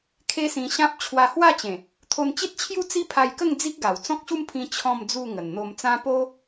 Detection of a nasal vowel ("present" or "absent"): present